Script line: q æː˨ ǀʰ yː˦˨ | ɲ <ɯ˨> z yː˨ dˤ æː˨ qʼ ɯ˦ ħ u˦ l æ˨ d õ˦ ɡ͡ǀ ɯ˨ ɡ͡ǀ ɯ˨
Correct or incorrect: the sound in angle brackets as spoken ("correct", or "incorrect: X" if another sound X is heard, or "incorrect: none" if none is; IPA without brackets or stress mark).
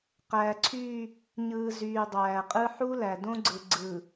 incorrect: ɯː˨